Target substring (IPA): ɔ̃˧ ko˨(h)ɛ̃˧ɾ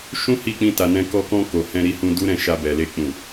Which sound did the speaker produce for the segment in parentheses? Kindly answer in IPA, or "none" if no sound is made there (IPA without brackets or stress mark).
h